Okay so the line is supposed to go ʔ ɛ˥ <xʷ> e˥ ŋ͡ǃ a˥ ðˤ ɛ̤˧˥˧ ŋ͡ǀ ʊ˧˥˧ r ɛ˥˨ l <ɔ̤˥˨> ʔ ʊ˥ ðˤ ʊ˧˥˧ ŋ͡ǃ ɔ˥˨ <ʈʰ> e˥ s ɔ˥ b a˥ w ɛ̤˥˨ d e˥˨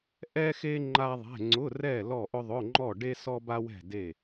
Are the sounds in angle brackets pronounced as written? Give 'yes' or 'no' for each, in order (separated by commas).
no, no, no